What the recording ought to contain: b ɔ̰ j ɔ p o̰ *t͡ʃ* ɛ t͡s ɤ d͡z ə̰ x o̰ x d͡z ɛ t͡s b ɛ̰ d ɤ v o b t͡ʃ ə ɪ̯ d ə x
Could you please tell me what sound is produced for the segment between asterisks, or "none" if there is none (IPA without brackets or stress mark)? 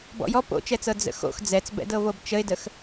t͡ʃ